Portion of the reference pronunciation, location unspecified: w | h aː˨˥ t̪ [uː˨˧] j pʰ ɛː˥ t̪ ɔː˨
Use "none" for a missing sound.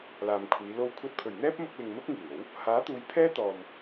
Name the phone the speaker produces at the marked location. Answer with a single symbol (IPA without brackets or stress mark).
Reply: uː˨˧